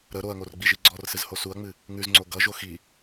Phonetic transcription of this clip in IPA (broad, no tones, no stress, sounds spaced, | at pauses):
ɾ ə ɾ o ɐ̯ ŋ o r ɡ͡b i ʒ i ɡ͡ǀ ɔ r s ɨ z h o s u ɐ̯ ŋ͡m ɨ | ŋ ʉ z ŋ͡ǀ o ɡ ʌ ʒ o x i